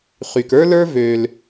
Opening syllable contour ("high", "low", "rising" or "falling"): low